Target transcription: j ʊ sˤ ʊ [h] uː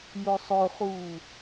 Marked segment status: incorrect: χ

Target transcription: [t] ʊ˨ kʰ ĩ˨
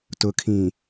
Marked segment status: correct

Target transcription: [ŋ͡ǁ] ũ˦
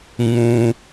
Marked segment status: incorrect: ŋ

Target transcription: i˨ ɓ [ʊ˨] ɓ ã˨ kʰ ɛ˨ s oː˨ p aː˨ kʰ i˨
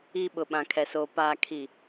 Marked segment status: correct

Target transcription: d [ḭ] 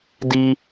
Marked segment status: incorrect: i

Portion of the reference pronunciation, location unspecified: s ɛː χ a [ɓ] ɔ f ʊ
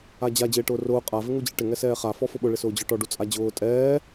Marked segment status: incorrect: f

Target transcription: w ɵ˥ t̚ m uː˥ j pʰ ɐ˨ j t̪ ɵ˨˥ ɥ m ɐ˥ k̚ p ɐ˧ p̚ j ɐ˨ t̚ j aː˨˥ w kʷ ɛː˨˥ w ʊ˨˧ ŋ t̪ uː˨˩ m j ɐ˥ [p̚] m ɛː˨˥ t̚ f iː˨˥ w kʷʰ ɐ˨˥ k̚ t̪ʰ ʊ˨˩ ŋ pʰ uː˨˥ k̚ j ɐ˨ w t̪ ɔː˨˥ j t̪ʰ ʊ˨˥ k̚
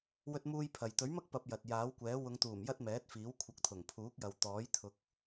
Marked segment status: incorrect: t̚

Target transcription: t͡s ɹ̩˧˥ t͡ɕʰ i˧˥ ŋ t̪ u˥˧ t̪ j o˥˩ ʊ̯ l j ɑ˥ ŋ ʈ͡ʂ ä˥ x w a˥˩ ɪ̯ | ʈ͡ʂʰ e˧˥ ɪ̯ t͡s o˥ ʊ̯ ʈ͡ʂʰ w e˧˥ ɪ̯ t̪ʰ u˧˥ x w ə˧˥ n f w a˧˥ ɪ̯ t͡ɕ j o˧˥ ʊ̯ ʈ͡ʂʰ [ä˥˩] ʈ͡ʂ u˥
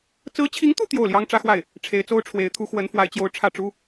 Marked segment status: correct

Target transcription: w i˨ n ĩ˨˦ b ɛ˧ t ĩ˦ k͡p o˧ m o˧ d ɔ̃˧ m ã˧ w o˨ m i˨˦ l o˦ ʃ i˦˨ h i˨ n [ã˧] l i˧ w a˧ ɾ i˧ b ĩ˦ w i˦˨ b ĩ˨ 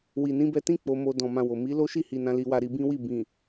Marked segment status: correct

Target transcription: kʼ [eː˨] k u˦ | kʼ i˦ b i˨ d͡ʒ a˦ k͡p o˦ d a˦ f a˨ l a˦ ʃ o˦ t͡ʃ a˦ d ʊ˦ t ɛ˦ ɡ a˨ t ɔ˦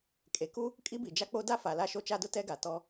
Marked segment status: incorrect: e˨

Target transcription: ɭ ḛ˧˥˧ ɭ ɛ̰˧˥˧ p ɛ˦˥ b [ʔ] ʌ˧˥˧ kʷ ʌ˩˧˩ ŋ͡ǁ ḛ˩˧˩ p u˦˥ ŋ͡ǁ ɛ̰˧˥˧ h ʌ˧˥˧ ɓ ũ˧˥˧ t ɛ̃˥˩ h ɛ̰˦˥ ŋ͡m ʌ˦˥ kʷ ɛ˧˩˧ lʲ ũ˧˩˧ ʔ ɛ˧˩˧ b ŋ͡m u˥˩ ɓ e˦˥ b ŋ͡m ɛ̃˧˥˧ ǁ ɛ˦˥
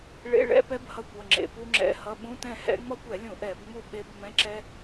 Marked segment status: incorrect: h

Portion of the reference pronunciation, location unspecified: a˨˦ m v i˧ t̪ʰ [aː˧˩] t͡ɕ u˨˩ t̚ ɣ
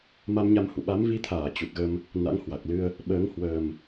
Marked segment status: correct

